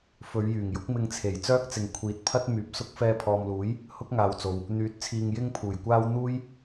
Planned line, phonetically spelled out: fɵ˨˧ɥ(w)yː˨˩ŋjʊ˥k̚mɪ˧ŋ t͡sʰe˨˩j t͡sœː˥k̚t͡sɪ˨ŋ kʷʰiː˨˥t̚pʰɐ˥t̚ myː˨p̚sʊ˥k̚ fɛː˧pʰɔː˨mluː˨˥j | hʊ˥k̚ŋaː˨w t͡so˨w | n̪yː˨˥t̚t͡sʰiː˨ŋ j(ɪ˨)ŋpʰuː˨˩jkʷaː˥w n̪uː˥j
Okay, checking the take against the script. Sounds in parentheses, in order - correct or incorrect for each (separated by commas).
incorrect, incorrect